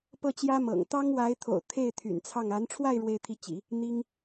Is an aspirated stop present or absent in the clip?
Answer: present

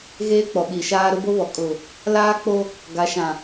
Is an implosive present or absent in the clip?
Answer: present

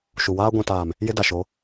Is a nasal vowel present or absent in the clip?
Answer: present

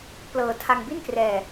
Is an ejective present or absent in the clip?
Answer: absent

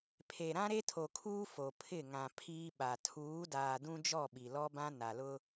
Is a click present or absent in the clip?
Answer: absent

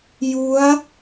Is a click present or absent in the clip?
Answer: absent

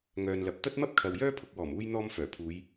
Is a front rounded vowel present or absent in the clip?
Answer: present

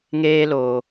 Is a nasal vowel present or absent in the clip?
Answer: absent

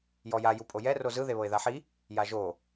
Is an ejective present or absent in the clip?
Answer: present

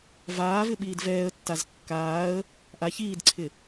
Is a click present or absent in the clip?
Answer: present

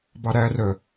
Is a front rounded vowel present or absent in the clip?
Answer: present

